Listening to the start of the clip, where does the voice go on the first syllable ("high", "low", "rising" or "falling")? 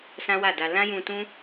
high